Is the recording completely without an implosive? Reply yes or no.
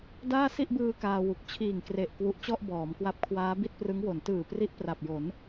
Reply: yes